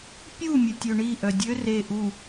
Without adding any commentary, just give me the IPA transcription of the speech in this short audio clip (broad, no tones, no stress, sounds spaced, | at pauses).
pʲ u mʲ ə tʲ ø ɳ i ʔ œ dʲ ø r e ʔ u